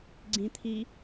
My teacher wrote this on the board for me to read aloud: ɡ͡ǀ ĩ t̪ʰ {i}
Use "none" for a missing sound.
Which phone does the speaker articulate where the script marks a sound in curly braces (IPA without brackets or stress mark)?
i